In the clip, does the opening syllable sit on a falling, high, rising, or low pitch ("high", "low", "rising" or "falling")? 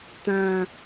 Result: low